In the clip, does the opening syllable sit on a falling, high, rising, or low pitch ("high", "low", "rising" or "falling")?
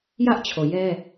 high